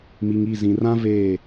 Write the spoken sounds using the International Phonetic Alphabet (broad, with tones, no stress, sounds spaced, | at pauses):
m i˨ ŋ i˦˨ z ĩ˨ r ã˦ v eː˦˨